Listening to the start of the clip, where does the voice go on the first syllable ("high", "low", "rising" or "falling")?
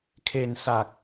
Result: low